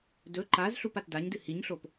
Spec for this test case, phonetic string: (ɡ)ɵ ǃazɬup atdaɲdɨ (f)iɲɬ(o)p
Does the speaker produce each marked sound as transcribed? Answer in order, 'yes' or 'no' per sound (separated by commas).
no, no, yes